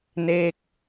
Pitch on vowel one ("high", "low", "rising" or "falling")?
falling